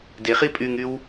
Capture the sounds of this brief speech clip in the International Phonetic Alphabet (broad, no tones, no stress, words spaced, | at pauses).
deχi pʼyŋyw